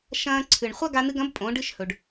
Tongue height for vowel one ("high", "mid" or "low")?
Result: low